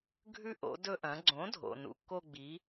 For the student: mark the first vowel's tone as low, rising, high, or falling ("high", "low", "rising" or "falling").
falling